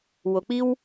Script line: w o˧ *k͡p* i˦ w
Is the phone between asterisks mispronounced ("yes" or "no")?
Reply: no